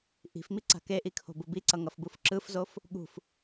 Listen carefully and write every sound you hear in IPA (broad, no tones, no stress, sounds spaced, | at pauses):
ʔ i̤ f m i ǀ a̤ k e ʔ i kʰ o̤ b u b i ǀ ʌ ŋ ʌ f b u f ǁ ɯ f z o f | ɠ ṳ f